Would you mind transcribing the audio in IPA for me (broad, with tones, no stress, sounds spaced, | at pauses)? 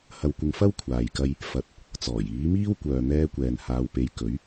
h ɐ˧ w kʷ ɪ˧ ŋ f ɐ˥ w kʷʰ aː˨ j k ɐ˧ j | f ɐ˨ t̚ | t͡s ɔː˨˩ j iː˨˥ m iː˥ w kʷ œː˨ n̪ ɛː˧ kʷ ɛː˨ n h aː˧ w p e˧ j k ɵ˨˥ ɥ